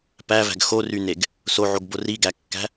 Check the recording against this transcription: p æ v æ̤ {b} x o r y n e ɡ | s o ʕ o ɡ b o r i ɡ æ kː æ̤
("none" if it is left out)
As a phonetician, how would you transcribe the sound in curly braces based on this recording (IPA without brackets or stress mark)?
ɡ